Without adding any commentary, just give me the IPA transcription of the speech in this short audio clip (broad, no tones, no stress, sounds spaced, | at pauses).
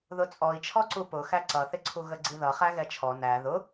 ð ʊ t͡sʼ ɔ i̯ t͡ʃʰ ɔ ǀ u p ʊ x æ ǀ ʌ θ ɪ ǀʰ u ɣ ə ɡ͡ǀ i ð ʌ χ æ ɣ ɛ t͡ʃʰ ɔ n æ ð ʊ